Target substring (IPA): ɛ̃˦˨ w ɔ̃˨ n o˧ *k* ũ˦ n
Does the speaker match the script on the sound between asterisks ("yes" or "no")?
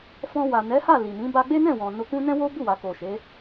yes